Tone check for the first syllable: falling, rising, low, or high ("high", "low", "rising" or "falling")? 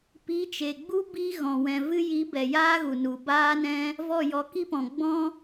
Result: rising